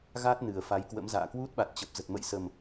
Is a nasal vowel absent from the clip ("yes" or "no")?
yes